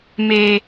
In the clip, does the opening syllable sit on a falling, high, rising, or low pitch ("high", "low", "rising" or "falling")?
high